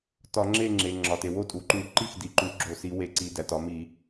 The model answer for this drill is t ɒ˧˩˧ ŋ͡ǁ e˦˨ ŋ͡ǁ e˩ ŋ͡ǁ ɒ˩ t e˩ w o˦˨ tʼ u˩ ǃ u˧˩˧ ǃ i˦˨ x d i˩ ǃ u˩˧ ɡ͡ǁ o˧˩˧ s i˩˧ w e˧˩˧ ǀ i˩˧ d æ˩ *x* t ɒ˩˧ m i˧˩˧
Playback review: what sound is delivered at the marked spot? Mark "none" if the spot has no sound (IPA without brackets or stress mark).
none